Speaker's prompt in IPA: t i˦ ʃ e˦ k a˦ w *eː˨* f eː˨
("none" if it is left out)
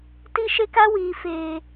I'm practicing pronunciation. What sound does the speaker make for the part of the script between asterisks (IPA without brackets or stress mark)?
iː˨